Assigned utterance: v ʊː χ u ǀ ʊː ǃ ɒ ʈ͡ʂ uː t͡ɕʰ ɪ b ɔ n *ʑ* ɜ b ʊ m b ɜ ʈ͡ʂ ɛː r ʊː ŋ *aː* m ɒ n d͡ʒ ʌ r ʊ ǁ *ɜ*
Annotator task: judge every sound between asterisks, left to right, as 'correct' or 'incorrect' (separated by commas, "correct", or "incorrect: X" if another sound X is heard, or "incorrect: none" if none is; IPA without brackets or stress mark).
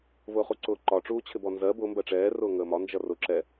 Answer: incorrect: z, incorrect: əː, incorrect: ɛ